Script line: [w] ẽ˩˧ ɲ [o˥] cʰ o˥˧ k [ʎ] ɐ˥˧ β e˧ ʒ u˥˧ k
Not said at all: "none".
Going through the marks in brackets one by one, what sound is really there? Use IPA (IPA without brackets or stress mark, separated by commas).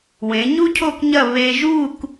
w, u˥, ɲ